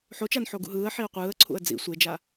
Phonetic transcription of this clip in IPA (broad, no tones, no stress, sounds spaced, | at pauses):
ħ o t͡ʃ a n ħ o ɡ ṵ ɦ ɯː ə̯ ħ i ʊ̯ qʷ ɯː ə̯ ǀʰ ṵ ə̯ d͡z ḭ sʷ e d͡ʒ a